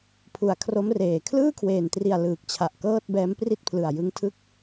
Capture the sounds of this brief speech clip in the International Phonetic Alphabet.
pʰ u˨˩ a̯ kʰ r o˦˥ m r eː˨˩ kʰ l ɯː˥˩ kʰ w eː˨˩ n t r i˨˩ a̯ l ɯː˨˩ k̚ t͡ɕʰ a˨˩ ʔ k ɤː˥˩ t̚ b ɛː˦˥ m p r i˥˩ t̚ pʰ l ɯ˨˩ a̯ j ɯ˦˥ ŋ tʰ ɯ˥˩ k̚

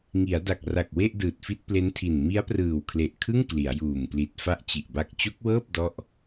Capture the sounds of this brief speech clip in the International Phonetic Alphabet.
ŋ i˩˦ a̯ d a˨˩ k̚ r a˨˩ k̚ w e˥˩ ʔ d ɯː˨˩ t̚ f i˥˩ t̚ p l e˦˥ n tʰ i˨˩ n m i˦˥ a̯ p r ɯː˨˩ w kʰ l e˨˩ ʔ kʰ ɯ˥˩ ŋ k l i˩˦ a̯ j uː˨˩ m p l i˨˩ t̚ f a˥˩ ʔ t͡ɕ i˨˩ ʔ b a˦˥ k̚ t͡ɕ o˦˥ k̚ w ɤː˥˩ p̚ d ɔ˥˩ ʔ

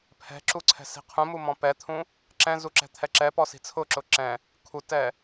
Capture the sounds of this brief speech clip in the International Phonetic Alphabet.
pʰ ɛ̤ ǁ u ǀʰ ɛ̤ s i̤ qʰ ũ m u m ɔ̃ p ɛ t̪ʰ ũ | ǁ ɛ̃ z u ǁ ɛ̤ t̪ʰ ɛ ǁ ɛ p ɔ s i̤ t͡sʰ ʊ ǁ ʊ ǁ ɛ̃ | kʰ u t ɛ

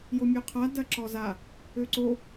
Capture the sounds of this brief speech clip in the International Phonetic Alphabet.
j o mʲ ø qʰ a d ɐ ǁ ɔ z a | ø ǀ o

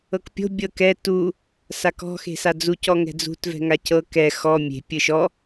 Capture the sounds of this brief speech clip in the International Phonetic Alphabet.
ɤ k pʲ o̤ bʲ ɤ k ɛ t u | s a k ɔ̤ x e̤ s a d͡z u c ɔ ŋ ɛ̤ d͡z ṳ t v ɛ̤ ŋ a c ɤ k ɛ x ɔ mʲ e̤ pʲ ɯ ʃ ɔ

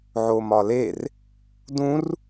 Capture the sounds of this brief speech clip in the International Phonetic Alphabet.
ʕ o m ɒ l e r | d ũ r

